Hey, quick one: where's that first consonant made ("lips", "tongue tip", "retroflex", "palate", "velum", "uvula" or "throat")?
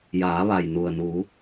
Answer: palate